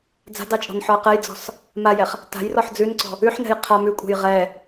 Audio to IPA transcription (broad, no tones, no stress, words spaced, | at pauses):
d͡za̤dɑt͡ʃʼɔ̤nħɔə̯ qɛjd͡zɔ̤s | majɛχ | ta̤jrɔħ d͡zʉnǀɔ̤ | ʉħnɛ̤j qʰa mʉkʷʼɛ̤j ʁɛ